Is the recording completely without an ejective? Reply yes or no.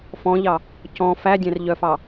yes